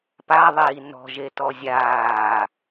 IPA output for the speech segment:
p a ðˤ iː n ɔ̤ ʒ e t ɔ zʲ aː

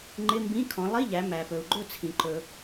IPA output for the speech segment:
ŋ͡ǃ ɪ˧˥˧ m b ĩ˧˥˧ kʰ ɔ̃˩˧ lˠ i˧˥˧ ʎ æ˩˧ m æ˩ p ɵ˩ u̯ ɡ͡ǃ ɵ˥˨ t͡sʰ ĩ˩ ǃ ɵ˩

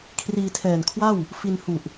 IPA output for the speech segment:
kʰ r iː˧ tʰ ɛː˨˩ n kʰ w a˥˩ w | f i˧ n h u˨˩ ʔ

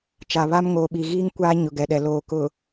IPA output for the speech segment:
t͡ʃ a˨ β a˦ m ŋ oː˨ ɓ i˨ ɣ iː˦ ŋ kʷ a˦ ɲ ʊ˨ ɡ ɛ˨ ɗ ɛ˨ l oː˨ k ʊ˨

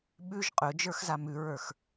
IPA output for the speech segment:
ɓ ʉ ʒ qʼ ɵ d͡ʒ ə˞ x z a m ʉ ɹ ə˞ x

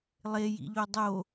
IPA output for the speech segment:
lˠ e j ḭ ʎ o dˤ o

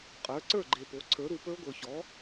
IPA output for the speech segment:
qʼ ə˞˩˥ ǀ ə˞˥˩ ɡ͡ǃ e˨ p o˩˥ ǀʰ ə˞˩˥ ɾ u˨ p ə˞˦˥ ɡʷ ə˞˨ ç ɔ˩˥

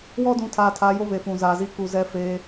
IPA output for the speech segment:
w ɔ˦ d ũ˨˦ tʰ aː˨ tʰ a˨˦ j o˦ β e˨ f ũ˨ z aː˨ z i˦ k u˨ z ɛ˦ f eː˦

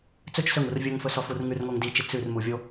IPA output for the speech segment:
t͡s ɵ t͡ʃ s ɵ ŋ u r vʲ ɵ ŋ f ɵ s ɔ f u r ŋ ʉ r ŋ o ŋ d i t͡ʃ i t͡s ʉ r m u vʲ o

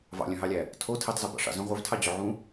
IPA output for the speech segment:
v ɑ̰ lʲ œ̃ ɦ ɑ lʲ æ | tʰ o tʰ i tˤ z ɔ b ɑ̰ ʂ ɑ̰ z œ̃ ʁʷ œ v tʰ ɑ d͡ʑ ɵ ʕ ũ

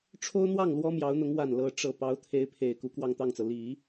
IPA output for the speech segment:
ʈ͡ʂʰ o˥ ʊ̯ n̪ w ɑ˥˩ ŋ l w ɔ˥ m j ɑ˧˥ ʊ̯ n̪ ʊ˧˥ ŋ w a˥˩ n l ɤ˥ ʈ͡ʂ ɤ˥˩ p ɑ˧˥ ʊ̯ t̪ʰ e˧˥ ɪ̯ pʰ e˨˩ ɪ̯ k u˧˥ k w ɑ˥˧ ŋ t̪ ɑ˥˩ ŋ t͡s ɤ˩ l i˨˩˦

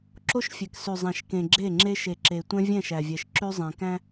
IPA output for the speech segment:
ǁ o˦ ʃ fʲ ɛ˨ k s ʉ˨ zˤ æ̃˨ ʃ k ẽ˨ ɡ͡ǁ e˦˨ ŋ͡ǁ e˦ ʃ e˨ ǁ e˨ tʷ ɛ̃˦ vʲ ɛ̃˦˨ ʃ æ˨ vʲ ɛ˨ ʃ ǁ ʉ˦ zˤ ẽ˨ k æ̃˦

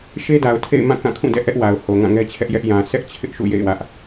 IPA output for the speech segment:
ʃ e˦ d a˨ ʊ̯ tʰ ḛ˦˨ ɪ̯ m ã˦˨ k ã˦˨ kʰ ũ˦˨ d ɛ̰˦˨ ʔ ɛ˦ ʔ w a˨ ʊ̯ h o˨ ŋ ã˦˨ ŋ ɛ˦ t͡ɕʰ ɛ˦ ʔ j ɛ˦ ʔ j ã˨ sʰ ɛ˦ ʔ t͡ɕʰ ɪ˦ ʔ ʃ ṵ˦˨ j ḛ˦˨ ɪ̯ w ä˦ ʔ

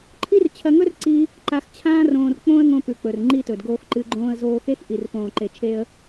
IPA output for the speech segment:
ǃʰ i˦ r t͡ɕʰ ɐ˧ ŋ ɵ˦ r ǀ i˦ | ǃ a˧ x t͡ɕʰ ãː˦ r õː˧ r k͡p õ˦ ə̯ ŋ õ˧ p ʉ˨ k͡p ɵ˨ r ŋ͡ǃ i˧ t ɵ˨ d ɡ oː˧ x ǃ ɨ˧ ɡ͡ǃ õː˧ ə̯ z oː˧ x e˦ x ʔ i˨ r p õː˨ ǃ e˨ t͡ʃʰ e˧ ə̯

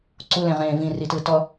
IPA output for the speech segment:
ǀ u l ẽ ʁ ẽː v ĩ r i t ɯ t ɔ

